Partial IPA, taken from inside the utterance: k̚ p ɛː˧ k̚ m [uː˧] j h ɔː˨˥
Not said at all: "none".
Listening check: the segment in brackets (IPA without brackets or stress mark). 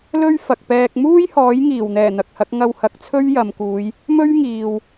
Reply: uː˥